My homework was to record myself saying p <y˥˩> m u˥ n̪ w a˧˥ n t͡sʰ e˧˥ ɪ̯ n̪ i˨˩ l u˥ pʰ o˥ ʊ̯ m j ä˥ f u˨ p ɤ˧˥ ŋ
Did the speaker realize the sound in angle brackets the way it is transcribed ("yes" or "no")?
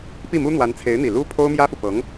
no